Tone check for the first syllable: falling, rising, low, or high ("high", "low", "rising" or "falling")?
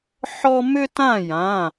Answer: high